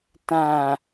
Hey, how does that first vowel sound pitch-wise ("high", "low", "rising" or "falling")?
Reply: low